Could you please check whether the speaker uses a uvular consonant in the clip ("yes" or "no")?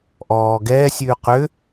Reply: yes